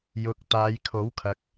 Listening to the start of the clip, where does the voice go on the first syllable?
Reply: low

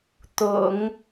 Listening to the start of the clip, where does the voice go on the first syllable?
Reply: low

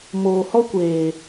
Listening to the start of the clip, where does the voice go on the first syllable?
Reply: low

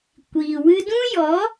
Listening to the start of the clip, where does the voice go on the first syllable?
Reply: low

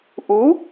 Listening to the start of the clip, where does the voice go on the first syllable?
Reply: rising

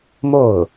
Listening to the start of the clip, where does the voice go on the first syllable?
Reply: falling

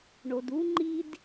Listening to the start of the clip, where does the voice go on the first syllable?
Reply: low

